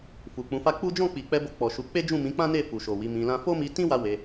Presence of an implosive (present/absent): absent